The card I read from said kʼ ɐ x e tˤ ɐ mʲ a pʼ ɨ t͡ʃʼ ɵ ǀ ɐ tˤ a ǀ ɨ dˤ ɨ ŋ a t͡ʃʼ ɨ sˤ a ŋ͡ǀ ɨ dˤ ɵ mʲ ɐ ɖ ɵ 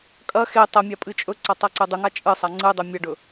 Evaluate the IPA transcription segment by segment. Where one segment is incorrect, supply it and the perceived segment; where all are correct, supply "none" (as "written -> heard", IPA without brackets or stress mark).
none